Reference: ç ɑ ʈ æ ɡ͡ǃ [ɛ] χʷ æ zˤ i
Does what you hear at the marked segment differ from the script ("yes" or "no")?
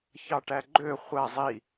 yes